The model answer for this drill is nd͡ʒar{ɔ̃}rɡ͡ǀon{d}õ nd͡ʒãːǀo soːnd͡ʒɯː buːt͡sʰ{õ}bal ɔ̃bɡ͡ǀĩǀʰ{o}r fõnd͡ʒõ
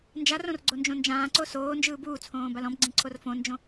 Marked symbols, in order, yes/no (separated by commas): no, no, no, yes